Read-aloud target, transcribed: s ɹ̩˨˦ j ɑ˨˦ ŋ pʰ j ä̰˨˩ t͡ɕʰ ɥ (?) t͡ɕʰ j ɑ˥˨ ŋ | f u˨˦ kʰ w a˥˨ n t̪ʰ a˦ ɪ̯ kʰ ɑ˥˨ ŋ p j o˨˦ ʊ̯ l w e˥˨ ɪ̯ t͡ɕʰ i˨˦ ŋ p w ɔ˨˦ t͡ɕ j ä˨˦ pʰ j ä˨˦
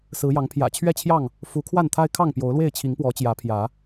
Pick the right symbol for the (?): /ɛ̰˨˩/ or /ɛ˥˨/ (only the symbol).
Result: ɛ˥˨